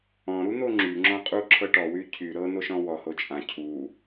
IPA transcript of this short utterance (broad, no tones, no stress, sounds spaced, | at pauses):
ɔ̃ ɾ u n̪ o ŋ͡ǁ y ŋ͡ǁ ɔ̃ qʼ u ǁʰ ɤ ʈ ɔ w y cʰ y ɾ ɤ n o ʃ ɔ̃ w ɔ h o t͡ʃʼ ã cʰ u